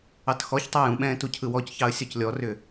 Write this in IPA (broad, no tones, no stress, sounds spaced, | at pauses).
ɑ t x ɔ ç tˤ ɛ j ũ ɓ ɛ̃ː t u cʰ ɯ w ɔ c ç ɑ ə̯ sʲ ɔ c lʲ ɔ r ʏ